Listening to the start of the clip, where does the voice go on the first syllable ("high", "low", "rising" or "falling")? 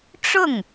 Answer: falling